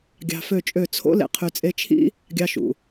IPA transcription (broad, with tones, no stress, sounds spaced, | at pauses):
ɡʲ ɑ̤˧ f ø˦˨ t͡ʃʼ ø˦˨ t͡sʰ o̰˦ l ḛ˧ qʰ y˨ t͡sʼ e˧ t͡ʃʰ ḭ˦ | ɡʲ ɑ˧ ʃ ṵ˨